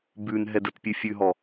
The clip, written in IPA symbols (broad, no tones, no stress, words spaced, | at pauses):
bʉn ɦɛdətpʲʉ fʲʉɦɔ